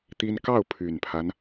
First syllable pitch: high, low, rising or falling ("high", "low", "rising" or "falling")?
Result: high